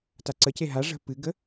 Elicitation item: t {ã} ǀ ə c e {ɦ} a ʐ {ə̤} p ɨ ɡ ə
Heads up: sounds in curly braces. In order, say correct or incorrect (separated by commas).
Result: incorrect, correct, correct